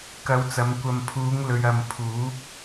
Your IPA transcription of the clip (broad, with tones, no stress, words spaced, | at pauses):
kɐ˨˧wt͡sɐ˨˧m kʷɐ˨mpʰuː˨˧ŋ lɵ˨ɥɐ˨m pʰuː˨˥p̚